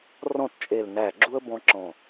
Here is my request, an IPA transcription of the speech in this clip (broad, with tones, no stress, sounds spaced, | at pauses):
r ɔ̃˥˩ t t͡ʃʼ e˧˩ l n æ˧˩ ɡ͡ǁ u˦ ə̯ b ɔ̃˦ ǁ ɔ̃˧˩